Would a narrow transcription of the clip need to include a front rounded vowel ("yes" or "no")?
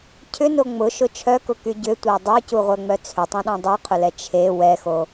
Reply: yes